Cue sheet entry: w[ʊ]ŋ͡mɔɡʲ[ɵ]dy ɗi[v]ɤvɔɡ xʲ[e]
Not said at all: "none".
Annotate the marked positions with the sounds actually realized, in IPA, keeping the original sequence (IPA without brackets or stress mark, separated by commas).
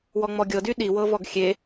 ɔ, ɤ, w, e